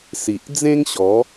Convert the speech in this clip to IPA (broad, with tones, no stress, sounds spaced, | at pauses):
s i˨ ʔ d͡z ẽ˦ ŋ ɕ ɔ˨˦